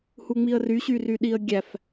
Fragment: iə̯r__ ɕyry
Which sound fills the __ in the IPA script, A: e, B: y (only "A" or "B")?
B